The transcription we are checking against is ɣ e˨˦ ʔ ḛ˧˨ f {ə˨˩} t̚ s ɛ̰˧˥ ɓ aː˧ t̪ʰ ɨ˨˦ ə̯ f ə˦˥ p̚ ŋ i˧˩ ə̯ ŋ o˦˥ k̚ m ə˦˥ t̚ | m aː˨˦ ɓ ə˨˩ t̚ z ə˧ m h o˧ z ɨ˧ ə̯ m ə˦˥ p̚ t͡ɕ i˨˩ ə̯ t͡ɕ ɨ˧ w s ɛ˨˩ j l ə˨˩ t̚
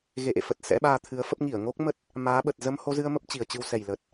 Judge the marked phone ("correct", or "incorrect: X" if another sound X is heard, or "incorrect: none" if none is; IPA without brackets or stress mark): correct